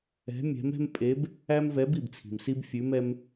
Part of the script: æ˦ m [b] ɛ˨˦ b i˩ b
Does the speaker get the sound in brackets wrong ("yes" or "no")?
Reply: yes